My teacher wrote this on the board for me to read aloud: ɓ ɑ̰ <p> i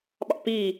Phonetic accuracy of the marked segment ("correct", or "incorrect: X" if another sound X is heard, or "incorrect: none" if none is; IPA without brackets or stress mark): correct